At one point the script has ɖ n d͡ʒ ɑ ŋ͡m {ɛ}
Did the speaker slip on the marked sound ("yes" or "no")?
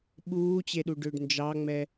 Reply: no